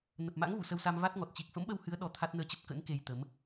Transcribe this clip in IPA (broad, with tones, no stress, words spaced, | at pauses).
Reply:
nə˨˩p̚ma̰˧˥ŋ vṵ˧˨sə˧wsa˧m va˦˥t̚ŋɔ˨˩t̚ t͡ɕi˨˩k̚fə̰˧˥mɓə˧whɨ˨˦ə̯ ɗɔ˨˦t̪ʰa˦˥t̚ nəː˧t͡ɕə˦˥p̚kə̰˧˥n ke˧jt̪ə˨˦m